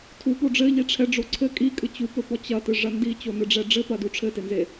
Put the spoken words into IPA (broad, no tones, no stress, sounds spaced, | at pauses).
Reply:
tʰ u p o ɖ͡ʐ ɘ ʎ i ʈ͡ʂʰ ɛ ɖ͡ʐ o ǀʰ ɘ kʼ i kʼ ɨ t͡ɕ u p ɘ p ɔ t͡ɕ ɐ t ɨ ʐ ɐ n d i t͡ɕ o n ɨ ɖ͡ʐ ɛ ɖ͡ʐ ɘ p ɐ d u ʈ͡ʂʰ ɘ t e n z e